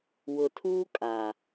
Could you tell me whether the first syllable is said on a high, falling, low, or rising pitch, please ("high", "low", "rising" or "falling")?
low